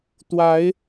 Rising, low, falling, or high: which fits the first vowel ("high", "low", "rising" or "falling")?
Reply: rising